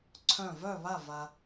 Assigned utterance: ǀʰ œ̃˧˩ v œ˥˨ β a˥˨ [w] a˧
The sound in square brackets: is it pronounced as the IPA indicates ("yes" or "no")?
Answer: no